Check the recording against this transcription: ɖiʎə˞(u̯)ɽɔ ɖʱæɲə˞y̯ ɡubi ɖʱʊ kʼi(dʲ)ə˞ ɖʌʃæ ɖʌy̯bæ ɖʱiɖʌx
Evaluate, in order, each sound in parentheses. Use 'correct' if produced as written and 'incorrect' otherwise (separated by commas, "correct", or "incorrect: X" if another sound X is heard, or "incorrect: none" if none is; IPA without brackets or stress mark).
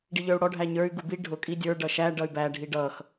correct, correct